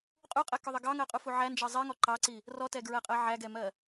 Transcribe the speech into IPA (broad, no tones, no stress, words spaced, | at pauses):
qʼuqʼɛkʊðˤə ɡɑŋɜqʼufu ʕænd͡ʒɜ zˤiŋɔ ǃɑǀi | rɔtɛɡɹɜqʼɜ ʕæɡɛmɜ